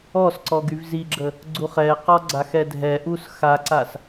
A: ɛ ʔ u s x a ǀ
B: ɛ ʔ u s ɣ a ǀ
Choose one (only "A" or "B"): A